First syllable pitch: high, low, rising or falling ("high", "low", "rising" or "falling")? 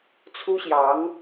high